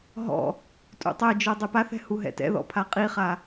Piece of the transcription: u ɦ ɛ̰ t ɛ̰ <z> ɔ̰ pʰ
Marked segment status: incorrect: ð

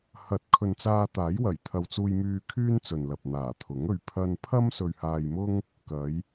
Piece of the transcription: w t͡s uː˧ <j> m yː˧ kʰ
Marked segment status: correct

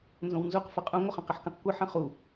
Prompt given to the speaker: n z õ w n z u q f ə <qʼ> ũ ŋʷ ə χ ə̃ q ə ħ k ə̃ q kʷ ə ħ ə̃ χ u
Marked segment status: correct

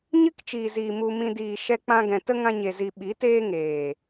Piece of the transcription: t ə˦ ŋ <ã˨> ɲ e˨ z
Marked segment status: incorrect: ã˧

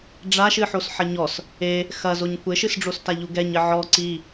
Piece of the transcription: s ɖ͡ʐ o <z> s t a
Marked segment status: incorrect: none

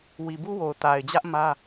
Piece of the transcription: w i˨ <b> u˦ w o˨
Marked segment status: correct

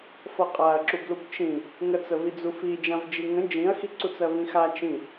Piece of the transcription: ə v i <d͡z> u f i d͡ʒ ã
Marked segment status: correct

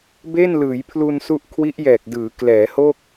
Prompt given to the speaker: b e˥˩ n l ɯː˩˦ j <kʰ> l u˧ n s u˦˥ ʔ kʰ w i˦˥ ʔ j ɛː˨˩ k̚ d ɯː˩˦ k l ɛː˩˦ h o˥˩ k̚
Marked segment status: incorrect: pʰ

